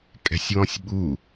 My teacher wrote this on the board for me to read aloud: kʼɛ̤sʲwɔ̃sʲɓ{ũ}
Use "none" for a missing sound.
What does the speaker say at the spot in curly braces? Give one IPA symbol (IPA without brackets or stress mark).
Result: u